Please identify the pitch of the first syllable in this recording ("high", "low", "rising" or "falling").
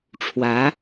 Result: rising